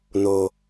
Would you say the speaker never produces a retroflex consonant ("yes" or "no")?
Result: yes